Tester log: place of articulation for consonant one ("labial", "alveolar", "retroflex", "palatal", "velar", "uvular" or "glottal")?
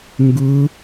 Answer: velar